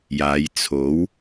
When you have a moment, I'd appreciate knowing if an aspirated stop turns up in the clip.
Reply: yes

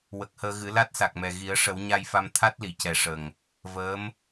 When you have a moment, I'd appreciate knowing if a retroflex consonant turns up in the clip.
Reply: yes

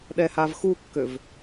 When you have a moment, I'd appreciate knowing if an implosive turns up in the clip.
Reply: yes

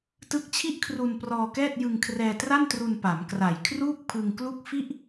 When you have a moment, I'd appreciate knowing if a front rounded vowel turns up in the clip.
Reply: no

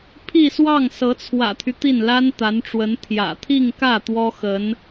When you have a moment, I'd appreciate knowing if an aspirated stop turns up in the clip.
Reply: yes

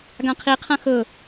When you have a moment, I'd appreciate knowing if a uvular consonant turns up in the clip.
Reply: yes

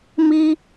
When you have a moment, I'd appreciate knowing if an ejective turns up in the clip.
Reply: no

